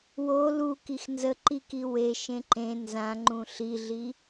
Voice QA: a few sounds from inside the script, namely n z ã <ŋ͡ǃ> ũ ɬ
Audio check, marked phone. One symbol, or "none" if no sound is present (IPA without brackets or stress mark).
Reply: ŋ͡ǃ